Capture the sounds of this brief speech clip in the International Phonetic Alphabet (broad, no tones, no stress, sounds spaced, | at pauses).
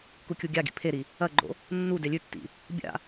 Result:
k u kʲ u ɡʲ a ɡ ḭ pʰ e ɾ i | ɐ ɡ͡ǃ o̰ | nː u d e lʲ ʉ tː ḭ | bʲ a̰